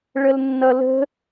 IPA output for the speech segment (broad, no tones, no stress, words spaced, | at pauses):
ɭəlnːʌlə̤